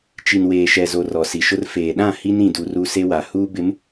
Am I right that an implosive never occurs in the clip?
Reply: no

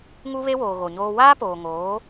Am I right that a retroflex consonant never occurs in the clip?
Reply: yes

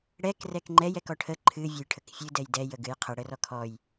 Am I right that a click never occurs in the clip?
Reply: no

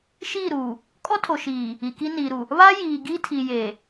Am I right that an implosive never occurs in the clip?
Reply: yes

